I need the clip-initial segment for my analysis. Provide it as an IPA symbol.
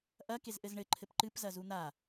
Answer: ʔ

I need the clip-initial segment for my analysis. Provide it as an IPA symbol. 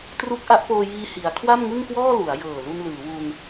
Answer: t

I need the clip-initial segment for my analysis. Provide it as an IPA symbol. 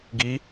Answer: ɡ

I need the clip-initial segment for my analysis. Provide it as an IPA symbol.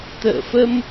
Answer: t̪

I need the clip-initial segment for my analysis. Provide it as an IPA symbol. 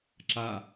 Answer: ǁ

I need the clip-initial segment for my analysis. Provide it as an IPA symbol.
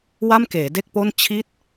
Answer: w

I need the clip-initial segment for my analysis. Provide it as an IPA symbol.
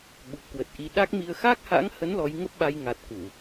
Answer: ɓ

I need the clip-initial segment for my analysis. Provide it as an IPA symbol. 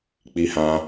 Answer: k͡p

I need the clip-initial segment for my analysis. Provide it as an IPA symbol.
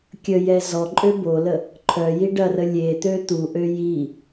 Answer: kʲ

